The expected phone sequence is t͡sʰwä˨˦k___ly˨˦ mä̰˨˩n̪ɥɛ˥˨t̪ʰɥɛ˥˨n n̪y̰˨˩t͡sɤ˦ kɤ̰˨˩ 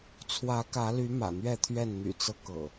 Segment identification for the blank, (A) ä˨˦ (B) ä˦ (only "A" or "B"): A